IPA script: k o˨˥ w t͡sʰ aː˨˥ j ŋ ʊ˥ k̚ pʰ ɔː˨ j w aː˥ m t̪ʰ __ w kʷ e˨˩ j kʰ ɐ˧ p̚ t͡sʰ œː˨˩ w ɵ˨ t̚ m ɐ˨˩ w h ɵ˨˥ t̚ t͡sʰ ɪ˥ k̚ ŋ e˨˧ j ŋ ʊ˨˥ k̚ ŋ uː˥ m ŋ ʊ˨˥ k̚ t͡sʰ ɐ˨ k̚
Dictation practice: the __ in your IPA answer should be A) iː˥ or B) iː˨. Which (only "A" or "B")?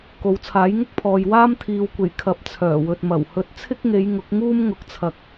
B